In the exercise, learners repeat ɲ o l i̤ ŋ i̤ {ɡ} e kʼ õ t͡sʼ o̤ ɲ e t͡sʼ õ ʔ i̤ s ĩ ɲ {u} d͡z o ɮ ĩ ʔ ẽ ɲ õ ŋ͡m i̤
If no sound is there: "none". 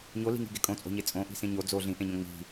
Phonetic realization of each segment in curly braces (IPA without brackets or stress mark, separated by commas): ɡ, o